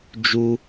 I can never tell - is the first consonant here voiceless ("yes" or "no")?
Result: no